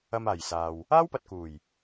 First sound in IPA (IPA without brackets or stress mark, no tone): ɐ